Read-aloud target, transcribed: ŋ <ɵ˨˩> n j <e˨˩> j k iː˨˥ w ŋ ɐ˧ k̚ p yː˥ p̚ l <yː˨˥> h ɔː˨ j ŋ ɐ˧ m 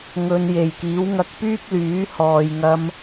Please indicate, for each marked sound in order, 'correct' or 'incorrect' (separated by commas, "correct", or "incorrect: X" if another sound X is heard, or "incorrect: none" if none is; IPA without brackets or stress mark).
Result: incorrect: ɵ˧, correct, correct